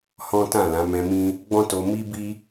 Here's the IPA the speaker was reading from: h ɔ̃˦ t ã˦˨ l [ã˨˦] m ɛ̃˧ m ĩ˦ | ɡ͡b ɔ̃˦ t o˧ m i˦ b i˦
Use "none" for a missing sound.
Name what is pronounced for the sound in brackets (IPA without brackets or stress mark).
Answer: ã˨˦